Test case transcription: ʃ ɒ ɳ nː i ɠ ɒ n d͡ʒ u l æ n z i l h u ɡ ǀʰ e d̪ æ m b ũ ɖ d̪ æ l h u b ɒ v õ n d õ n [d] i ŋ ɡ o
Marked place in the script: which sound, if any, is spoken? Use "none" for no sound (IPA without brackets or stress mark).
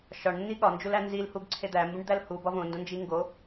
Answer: d͡ʒ